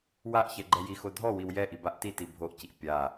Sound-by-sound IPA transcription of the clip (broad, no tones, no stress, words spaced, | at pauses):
waʔçɛ ɡ͡ǃɛjixo dʱɔ wiwjɛʔi baʔtiti bʱoʔciʔ pʲa